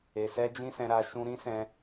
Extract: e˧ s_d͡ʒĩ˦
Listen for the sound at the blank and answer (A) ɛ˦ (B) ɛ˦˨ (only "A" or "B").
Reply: A